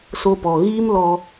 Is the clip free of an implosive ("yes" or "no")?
yes